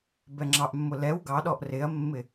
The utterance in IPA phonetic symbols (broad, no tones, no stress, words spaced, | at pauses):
bɛŋ͡ǁɑʔmːʊ lɛw ɡɑɗɔʔ rɪɐ̯mːɪ